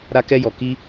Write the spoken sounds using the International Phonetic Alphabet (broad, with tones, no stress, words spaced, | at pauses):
ɾa˦kɛ˦jɔ˧ ki˦